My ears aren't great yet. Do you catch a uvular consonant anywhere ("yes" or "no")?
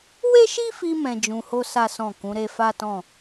no